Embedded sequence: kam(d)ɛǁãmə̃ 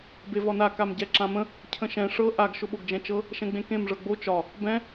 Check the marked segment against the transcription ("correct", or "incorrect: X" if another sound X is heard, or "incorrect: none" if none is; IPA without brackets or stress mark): incorrect: ɟ